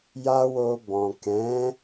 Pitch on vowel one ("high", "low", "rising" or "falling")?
high